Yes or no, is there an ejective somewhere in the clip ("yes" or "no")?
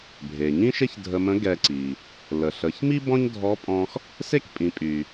yes